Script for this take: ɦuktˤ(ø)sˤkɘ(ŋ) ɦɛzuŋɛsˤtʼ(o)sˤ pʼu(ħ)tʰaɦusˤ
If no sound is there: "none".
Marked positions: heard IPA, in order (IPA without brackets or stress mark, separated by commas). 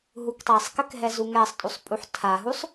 ɛ, k, u, ħ